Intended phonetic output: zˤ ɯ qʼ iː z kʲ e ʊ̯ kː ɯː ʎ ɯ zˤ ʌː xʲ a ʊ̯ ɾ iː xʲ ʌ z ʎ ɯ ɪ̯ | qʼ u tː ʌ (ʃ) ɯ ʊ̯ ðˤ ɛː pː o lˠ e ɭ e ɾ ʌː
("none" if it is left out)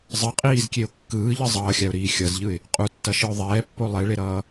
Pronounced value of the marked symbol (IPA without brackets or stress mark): ʃ